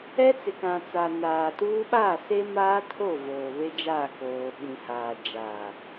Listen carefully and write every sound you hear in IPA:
ɛ˦t͡sɪ˨kã˨ t͡sa˨ naː˨tuː˦ ɓaː˦˨ se˦maː˦tʰo˦˨ voː˨βe˦d͡ʒaː˦˨ koː˨ ɓĩ˨ haː˨ d͡ʒaː˨

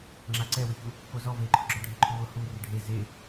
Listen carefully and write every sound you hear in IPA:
ŋ͡ǁaǀɛwɪçu | kozɔ veǃʰʊɡ͡ǁɔ ɖʱeǃʰuwʊ hu rɪɖʱe ze

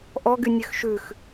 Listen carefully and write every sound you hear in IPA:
ʔɔɡy nʲøxʃʉx

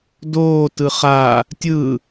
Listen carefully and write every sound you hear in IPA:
doː tɯχaː | tʲɯː

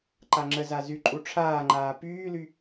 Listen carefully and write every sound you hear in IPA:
ǃaŋ͡ǁəza zy ǃʼuʈ͡ʂʰaːŋ͡ǃaː pyːly

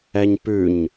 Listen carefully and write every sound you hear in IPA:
ɛɲpʉɲ

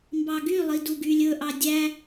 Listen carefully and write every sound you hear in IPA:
mbɑɡylˠi duɡylʲɵʔɑ dʲæ

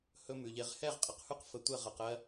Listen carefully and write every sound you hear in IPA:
hɵ˦mʉ˨ʎe˦ʁ hɛ˦˨ʁqʼə˨qhʉ˦qfə˨ tʷɛ˦˨ʁɜ˨qɜ˦

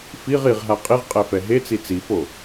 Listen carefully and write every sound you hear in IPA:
fiʁ iʁɦa qʼiʁqʼɛfɛ ɦet͡si t͡sifo

